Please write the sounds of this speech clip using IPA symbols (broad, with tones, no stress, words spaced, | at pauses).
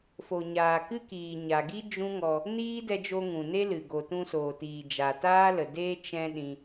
fo˨ɲaː˨kɨ˦kiː˨ ɲa˨ɡi˦ d͡ʒũ˦ŋɔ˧ | niː˦dɛ˧d͡ʒo˧ ŋũ˨ne˦lɨ˨ ɡo˨tũ˧soː˨tiː˨ d͡ʒa˨taː˦lə˨deː˦ t͡ʃɛ̃˦ɗĩ˧